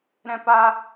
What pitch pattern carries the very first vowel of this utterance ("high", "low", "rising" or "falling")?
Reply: high